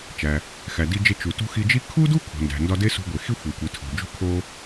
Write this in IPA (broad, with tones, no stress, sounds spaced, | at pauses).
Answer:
t͡ʃ æ˩ | x æ˩ d i˧ d͡ʒ e˧ t͡ʃ u˩ t ṳ˧ x i˧ d͡ʒ i˥ kʰ u˥ d u˥ kʰ o̤˩ n d æ̤˩ n d ɒ˧ d e˥ s ṳ˧ ɡʷ e˩ x i˥ xʷ e˩ kʷ i˩ tʰ o̤˩ d͡ʒ ṳ˧ kʰ o˧